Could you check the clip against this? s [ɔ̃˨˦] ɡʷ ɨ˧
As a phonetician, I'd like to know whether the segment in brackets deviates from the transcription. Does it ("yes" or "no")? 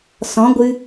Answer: no